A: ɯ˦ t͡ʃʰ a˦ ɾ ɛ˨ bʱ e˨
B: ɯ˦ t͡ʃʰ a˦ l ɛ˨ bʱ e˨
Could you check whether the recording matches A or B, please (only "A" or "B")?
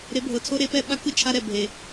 A